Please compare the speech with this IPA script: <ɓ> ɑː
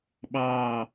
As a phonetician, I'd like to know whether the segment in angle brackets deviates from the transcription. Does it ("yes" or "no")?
no